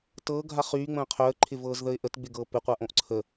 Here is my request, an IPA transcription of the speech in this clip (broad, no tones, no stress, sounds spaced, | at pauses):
t ɤː ɡʱ a χ yː ŋ͡m ə̃ː qʰ œ ə̯ ǃʰ ɪ v ɤː z ð ə ɪ̯ ʔ ə t ɡ͡b ɪ ɡ ɤː p ɪ qʷ a ʔ õ ʔ ǀʰ ə